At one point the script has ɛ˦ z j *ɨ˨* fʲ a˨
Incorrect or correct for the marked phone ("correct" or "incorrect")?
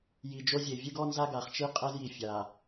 incorrect